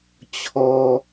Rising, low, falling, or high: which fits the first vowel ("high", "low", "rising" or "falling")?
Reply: high